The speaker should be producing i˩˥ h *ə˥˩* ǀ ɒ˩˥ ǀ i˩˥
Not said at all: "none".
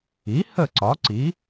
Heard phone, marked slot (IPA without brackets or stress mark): ə˥˩